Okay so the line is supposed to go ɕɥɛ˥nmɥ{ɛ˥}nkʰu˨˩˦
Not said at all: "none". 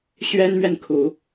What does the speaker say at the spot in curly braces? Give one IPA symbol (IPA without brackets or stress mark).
ɛ˨